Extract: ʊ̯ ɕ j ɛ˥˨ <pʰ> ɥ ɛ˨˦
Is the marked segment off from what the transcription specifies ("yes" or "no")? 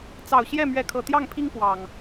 yes